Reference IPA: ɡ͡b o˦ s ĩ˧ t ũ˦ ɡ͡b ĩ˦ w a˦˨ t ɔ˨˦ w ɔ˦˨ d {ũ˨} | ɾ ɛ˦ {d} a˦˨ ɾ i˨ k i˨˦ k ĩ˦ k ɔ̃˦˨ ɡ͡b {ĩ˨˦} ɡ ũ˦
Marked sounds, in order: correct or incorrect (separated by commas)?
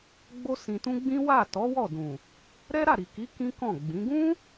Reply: correct, incorrect, correct